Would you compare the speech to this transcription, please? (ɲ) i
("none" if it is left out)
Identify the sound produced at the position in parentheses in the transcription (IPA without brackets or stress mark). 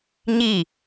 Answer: ɲ